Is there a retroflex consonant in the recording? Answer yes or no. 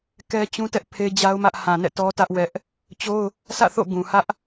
no